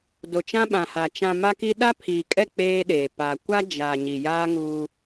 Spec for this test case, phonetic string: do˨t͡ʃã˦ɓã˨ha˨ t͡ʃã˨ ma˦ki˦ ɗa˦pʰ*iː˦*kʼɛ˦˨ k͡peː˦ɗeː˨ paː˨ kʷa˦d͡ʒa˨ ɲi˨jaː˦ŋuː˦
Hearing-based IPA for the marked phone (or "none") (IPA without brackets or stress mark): iː˨